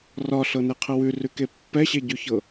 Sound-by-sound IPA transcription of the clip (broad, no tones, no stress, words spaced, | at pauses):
rɒɬɤneqʰə wʉrʉke pːɛɕeɟʉçɤ